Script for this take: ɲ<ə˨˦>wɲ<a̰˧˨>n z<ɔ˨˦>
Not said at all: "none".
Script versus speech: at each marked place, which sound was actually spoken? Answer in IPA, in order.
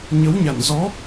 ə˨˦, a̰˧˨, ɔ˨˦

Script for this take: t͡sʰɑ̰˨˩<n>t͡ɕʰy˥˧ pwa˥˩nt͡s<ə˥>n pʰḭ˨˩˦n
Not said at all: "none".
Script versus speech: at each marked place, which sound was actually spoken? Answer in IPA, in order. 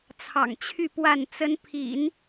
ŋ, ə˥

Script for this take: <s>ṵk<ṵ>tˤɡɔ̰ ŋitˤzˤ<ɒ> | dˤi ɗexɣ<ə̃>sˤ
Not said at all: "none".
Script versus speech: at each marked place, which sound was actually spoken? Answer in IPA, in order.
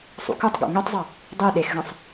sˤ, u, ʌ, ə̃

